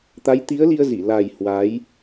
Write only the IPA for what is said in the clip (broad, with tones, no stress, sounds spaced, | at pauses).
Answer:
t̪ a˨˦ j t̪ i˨˦ ə̯ l i˧ ə̯ z i˧˩ l a˨˩ j h w a˨˦ j